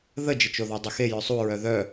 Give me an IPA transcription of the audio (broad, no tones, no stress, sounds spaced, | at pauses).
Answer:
ð ə d͡ʒ ə t͡ʃ o ð ɔ dˤ ə x e j œ sˤ u ɹ œ ð œ